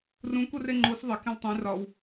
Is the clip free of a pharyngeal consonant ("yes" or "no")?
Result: yes